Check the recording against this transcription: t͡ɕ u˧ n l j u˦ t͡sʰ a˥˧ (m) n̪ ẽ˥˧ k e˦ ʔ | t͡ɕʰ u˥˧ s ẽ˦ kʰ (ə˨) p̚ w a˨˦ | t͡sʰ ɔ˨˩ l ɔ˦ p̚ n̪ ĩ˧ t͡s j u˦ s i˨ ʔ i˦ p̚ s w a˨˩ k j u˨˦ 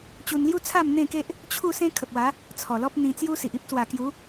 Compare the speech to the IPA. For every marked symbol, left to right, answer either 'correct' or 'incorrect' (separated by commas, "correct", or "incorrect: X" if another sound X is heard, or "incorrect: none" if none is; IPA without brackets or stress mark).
correct, correct